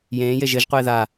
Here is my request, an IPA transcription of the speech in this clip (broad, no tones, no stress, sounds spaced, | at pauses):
j ẽː j e ʒ ɘ ʒ qʷ eː ð a